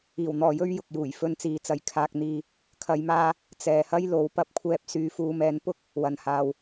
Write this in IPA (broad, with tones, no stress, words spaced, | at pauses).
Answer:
iː˨˩wn̪ɔː˨jɵ˥ɥ jʊ˨k̚juː˨˩jfɵ˧nt͡siː˨˧ t͡sɐ˨˩jkʰaː˨k̚n̪iː˨ | kʰɐ˨˧jmaː˧ | t͡sɛː˨hɐ˥jlo˨˥w pɐ˧p̚kʷʰɛː˧p̚ syː˨fuː˨mɛː˨˧n pʊ˥k̚ | wɐ˨nhaː˨w